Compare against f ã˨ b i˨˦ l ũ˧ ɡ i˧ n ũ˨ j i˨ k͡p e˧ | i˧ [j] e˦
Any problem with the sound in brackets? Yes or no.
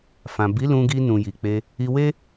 yes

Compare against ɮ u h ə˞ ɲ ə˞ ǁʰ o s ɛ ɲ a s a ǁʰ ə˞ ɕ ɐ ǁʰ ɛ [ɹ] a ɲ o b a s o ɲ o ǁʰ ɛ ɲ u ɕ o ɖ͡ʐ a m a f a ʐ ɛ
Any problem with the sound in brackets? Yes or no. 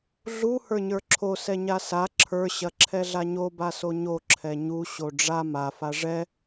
yes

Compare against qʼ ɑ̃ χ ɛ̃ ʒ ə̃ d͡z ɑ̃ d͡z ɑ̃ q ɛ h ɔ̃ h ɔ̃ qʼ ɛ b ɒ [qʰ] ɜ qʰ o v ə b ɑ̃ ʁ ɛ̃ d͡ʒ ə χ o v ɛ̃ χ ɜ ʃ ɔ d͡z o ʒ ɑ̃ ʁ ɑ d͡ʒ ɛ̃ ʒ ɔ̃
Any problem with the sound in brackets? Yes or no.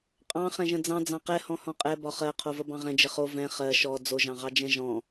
yes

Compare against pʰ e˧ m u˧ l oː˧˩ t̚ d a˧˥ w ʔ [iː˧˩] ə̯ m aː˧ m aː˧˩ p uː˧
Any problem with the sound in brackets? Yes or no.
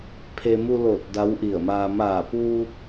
yes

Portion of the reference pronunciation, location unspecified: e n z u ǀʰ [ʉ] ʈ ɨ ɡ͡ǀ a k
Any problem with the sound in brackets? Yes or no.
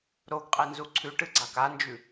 no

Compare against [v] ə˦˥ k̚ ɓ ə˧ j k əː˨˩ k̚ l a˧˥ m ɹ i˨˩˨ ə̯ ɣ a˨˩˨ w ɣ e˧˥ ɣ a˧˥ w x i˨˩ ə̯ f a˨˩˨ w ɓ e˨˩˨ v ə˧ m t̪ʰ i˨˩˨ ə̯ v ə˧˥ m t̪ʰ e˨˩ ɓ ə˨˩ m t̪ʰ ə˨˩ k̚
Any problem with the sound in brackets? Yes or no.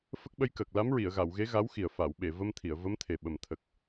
yes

